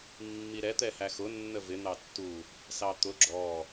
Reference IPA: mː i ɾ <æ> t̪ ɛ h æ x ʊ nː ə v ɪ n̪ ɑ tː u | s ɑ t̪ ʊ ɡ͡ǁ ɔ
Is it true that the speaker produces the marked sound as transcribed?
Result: no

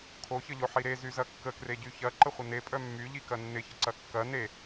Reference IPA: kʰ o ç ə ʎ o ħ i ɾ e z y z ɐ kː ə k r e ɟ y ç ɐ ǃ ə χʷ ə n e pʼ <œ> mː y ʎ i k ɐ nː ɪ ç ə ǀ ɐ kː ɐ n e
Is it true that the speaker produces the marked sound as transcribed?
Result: yes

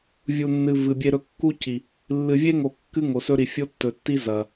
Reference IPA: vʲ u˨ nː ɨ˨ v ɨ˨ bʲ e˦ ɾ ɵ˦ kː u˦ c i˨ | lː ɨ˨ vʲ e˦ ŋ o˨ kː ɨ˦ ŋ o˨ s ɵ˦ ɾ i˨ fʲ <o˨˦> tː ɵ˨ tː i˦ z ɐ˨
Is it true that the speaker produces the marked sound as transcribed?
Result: no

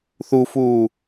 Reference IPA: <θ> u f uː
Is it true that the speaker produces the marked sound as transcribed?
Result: yes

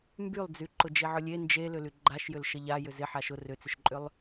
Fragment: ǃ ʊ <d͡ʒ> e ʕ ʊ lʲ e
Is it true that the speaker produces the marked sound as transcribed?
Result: yes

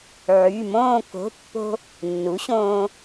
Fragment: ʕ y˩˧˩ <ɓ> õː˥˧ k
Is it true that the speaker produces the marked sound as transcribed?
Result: no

